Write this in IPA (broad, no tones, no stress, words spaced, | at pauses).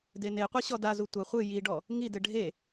deneqʷi ɕɔdazu tʷɐ χʷɨ jiɖɔ | ŋidɘ ɖʱe